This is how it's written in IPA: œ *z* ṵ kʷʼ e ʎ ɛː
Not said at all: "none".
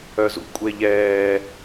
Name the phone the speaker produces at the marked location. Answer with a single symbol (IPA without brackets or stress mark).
z